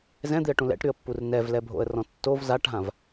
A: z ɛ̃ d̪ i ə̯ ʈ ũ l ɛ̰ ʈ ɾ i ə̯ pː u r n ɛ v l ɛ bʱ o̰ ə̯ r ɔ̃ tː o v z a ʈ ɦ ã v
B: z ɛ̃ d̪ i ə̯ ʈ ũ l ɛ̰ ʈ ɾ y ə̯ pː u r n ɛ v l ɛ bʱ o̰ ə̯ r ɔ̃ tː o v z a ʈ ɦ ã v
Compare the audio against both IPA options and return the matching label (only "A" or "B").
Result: B